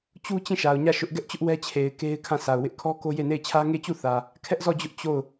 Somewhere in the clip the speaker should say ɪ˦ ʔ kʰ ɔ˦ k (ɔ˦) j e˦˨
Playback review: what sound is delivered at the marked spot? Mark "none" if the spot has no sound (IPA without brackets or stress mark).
o˦